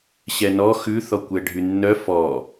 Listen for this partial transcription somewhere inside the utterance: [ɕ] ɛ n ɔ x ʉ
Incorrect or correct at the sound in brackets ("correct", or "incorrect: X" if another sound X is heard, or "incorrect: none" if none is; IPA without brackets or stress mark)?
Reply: correct